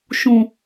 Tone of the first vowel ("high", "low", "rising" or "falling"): low